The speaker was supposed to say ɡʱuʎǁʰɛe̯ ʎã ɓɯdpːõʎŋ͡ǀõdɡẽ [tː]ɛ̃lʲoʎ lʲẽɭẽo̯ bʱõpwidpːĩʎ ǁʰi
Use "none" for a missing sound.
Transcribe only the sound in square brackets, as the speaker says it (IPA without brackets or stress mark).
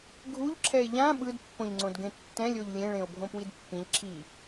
tː